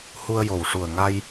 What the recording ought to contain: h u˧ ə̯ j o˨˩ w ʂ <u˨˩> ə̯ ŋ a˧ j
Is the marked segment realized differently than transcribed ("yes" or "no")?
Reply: no